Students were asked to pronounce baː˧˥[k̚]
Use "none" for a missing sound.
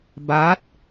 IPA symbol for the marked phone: t̚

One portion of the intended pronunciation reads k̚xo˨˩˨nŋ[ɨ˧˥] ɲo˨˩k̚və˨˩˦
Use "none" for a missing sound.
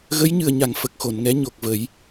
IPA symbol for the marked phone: ɛ˧˥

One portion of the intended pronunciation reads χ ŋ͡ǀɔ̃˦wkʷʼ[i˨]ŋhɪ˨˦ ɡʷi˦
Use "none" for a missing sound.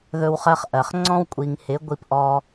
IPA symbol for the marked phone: i˨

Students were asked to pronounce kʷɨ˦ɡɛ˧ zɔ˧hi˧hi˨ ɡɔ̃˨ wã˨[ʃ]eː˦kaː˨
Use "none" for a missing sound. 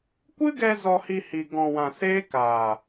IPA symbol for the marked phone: s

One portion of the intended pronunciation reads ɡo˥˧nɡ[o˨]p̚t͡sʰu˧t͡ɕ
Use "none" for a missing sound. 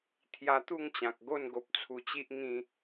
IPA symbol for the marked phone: o˨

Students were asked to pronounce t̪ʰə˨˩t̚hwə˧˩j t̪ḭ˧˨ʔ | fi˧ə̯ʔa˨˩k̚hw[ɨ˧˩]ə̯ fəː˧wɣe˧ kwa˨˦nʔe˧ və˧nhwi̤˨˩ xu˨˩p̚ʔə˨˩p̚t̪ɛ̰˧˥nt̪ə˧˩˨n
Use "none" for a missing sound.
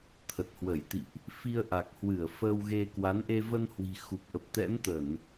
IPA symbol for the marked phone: ɨ˧˩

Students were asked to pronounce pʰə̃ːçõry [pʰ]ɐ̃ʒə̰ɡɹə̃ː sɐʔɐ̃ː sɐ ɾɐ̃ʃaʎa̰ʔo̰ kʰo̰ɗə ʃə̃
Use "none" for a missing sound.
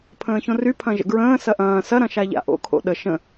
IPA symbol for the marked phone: pʰ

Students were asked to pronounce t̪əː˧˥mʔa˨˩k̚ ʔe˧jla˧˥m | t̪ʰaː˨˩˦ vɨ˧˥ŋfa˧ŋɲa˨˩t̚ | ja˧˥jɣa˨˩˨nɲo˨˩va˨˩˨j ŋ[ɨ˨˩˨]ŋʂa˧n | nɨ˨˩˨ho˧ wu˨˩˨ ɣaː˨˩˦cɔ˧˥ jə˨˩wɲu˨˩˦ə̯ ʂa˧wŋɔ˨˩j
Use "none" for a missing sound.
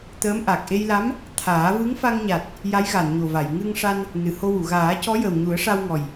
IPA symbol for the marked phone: ɨ˧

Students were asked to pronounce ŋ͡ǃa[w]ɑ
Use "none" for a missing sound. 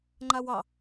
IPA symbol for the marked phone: w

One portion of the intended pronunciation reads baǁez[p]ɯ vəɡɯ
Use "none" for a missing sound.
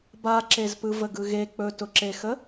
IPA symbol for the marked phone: p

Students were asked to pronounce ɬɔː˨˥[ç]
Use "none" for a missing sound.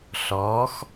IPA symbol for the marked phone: x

